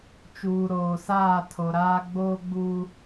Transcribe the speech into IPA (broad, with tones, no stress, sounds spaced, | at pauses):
t͡ʃ uː˨ ɾ oː˨ s aː˦˨ tʰ o˨ ɾ aː˦ ɡ͡b oː˦ ɡ͡b uː˦